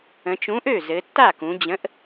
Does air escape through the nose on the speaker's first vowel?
yes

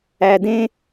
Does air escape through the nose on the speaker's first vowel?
no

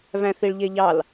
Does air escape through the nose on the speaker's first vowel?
yes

